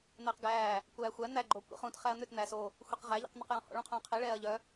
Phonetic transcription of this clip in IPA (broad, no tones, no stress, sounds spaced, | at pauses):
n̪ ɛː q ɡ æː | kʷ æː xʷ æ n̪ æ ɡ͡ǃ o kʷ ḭ χ ũ t χ æ ɐ̯ n̪ ʏ t n̪ æ s o | xʷ i q ʁ æ ʎ ḭ q n̪ œ q j ɔ̃ h ɔ̰ ɭ ũ qʰ ũː qʰ i ɭ ɛː ɐ̯ ʎ œ